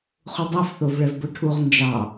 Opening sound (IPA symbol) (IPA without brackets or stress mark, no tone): χ